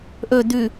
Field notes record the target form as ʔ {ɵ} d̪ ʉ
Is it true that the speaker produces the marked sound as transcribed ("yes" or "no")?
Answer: yes